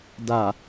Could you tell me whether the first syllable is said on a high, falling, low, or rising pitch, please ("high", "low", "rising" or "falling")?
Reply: low